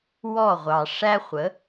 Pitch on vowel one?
falling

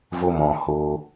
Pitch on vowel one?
high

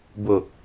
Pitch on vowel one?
low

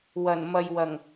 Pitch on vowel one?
low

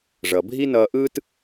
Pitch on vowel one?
low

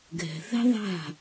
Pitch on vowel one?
low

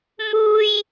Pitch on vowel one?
high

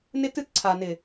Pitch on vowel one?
high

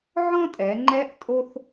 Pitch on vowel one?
high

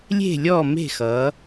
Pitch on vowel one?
falling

